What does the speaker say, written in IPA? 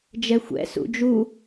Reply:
d͡ʒɛxʷɛ̰sṵ d͡ʒu

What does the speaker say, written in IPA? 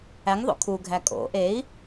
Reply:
æŋðˤo̰ kʰuɡʱæ kʼo̰ ʔei̯

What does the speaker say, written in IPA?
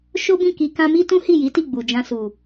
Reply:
ʃo˦bĩ˦˨ki˧ kã˧mi˦tũ˦ hi˦˨ji˨˦ti˦˨ ɡ͡bu˨d͡ʒã˧su˨

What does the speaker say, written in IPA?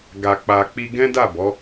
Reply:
ɡa˨k͡pa˨k͡pi˧ ɡɛ̃˦da˦˨ bɔ˨˦

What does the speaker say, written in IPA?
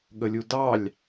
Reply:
ɠəlʲudɑlʲ

